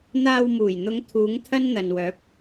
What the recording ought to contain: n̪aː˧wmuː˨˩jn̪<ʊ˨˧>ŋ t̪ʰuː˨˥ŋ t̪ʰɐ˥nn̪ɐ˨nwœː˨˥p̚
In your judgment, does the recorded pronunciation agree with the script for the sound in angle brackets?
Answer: yes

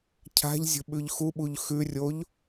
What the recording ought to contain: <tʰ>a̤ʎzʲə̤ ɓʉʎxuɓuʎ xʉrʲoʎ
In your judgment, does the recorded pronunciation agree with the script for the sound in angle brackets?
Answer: no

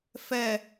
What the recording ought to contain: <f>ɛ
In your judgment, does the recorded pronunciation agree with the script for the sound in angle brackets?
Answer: yes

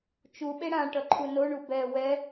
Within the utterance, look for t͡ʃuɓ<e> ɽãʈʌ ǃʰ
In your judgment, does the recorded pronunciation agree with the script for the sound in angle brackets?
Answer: yes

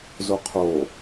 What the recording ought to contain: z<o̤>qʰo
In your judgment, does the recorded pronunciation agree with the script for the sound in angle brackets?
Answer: no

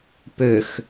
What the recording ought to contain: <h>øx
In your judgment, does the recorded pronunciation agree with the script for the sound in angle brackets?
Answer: no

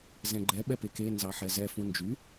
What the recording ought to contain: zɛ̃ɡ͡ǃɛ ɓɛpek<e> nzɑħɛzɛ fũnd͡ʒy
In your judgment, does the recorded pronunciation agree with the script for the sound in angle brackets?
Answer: yes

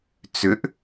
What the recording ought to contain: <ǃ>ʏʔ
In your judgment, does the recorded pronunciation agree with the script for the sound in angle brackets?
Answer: no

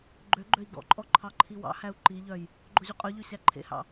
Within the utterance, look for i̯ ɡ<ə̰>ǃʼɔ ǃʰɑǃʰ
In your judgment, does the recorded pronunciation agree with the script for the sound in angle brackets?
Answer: no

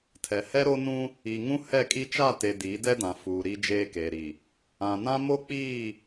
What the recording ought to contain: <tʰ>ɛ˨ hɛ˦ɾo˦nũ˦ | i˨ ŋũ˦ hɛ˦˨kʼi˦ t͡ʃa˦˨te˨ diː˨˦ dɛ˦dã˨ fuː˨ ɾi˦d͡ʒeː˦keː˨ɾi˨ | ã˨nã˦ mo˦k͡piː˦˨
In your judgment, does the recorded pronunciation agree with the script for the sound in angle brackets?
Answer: yes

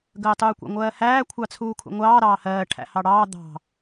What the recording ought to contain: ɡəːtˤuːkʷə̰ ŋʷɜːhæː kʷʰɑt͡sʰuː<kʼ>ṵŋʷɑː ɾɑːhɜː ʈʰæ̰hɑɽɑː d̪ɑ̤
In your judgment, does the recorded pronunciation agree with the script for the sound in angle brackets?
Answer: no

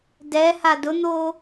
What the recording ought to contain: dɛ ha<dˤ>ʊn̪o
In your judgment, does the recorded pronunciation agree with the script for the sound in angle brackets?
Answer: no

